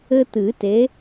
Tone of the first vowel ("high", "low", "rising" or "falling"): high